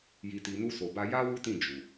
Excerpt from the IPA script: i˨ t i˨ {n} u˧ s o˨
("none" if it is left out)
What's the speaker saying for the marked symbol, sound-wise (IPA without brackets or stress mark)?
n